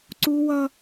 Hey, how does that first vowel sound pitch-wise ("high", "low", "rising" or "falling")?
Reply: high